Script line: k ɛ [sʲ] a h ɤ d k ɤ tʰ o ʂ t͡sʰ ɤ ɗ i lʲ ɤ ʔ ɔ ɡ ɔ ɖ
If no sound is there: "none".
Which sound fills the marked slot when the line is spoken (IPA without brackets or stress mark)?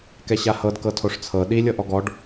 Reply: ɕ